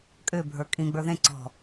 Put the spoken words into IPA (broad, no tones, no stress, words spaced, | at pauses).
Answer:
kʼʏːbʱə˞ kʼĩ ɡ͡bə˞ðẽ ǀɔ̤